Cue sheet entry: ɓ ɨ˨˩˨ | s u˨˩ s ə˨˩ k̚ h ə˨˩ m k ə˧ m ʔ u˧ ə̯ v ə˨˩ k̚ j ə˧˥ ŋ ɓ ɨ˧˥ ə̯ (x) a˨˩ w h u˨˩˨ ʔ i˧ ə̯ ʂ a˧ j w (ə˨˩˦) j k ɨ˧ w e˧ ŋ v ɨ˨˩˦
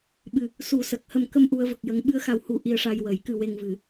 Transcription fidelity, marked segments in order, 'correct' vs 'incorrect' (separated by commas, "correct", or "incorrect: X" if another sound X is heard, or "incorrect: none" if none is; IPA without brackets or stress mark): correct, correct